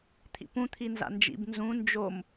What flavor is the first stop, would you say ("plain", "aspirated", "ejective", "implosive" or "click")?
aspirated